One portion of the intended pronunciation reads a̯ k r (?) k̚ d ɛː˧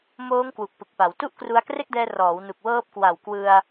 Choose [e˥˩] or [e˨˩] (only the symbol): e˥˩